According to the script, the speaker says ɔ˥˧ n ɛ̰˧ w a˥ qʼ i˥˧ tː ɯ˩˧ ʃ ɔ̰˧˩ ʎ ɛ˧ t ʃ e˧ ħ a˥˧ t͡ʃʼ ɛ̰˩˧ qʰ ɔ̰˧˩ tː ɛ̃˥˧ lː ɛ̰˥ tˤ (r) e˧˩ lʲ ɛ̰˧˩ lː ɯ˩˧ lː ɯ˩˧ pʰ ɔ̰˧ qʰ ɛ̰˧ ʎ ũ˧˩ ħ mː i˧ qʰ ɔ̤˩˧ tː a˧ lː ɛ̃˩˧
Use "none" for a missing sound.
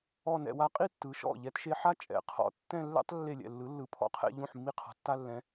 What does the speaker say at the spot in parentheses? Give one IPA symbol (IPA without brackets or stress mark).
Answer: lː